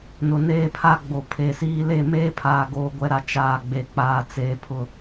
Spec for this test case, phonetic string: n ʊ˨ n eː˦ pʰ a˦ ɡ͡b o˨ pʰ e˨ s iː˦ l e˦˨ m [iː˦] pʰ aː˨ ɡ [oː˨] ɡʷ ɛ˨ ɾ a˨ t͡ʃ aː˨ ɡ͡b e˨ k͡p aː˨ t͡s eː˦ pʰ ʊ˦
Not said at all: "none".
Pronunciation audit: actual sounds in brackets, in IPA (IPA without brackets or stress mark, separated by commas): eː˦, oː˨